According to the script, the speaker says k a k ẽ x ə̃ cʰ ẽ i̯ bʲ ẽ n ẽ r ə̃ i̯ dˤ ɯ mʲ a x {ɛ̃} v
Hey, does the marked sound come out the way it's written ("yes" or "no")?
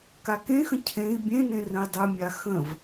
no